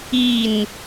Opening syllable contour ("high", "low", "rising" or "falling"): falling